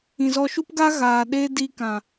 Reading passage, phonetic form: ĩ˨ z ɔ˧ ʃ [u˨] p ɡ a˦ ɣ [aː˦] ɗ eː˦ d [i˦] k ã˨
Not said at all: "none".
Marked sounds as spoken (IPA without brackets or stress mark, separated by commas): u˦, aː˨, i˦